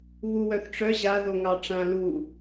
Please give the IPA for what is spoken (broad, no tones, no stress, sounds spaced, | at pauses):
β u w œ θ ʈ͡ʂ œ ʑ a ð o ŋ ɑ ʈ͡ʂ ã l u